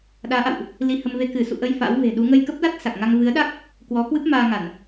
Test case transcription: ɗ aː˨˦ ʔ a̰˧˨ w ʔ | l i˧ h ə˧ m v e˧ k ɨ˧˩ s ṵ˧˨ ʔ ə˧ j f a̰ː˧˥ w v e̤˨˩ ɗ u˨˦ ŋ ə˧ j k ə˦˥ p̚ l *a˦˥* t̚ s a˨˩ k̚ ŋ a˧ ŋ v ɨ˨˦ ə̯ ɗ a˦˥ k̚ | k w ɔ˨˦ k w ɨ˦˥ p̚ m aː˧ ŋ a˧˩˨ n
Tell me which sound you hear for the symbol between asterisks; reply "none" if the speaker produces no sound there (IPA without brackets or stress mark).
a˦˥